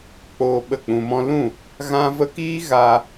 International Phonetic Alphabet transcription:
k͡poː˧ ɓə˦˨k͡pũ˧mɔ̃˦ lũ˦˨ | ɣã˦və˦ kiː˦ɣa˧

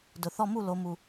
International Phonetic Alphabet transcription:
dʊ˨˩θɔ˥˧mu˥˧ lo˨˦mu˨˩

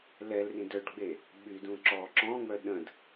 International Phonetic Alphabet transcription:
lɛlrĩ dœɖɡ͡be | ɓydũ ǁɔ ǁɔ̃ŋ͡mœ ɗə̃d

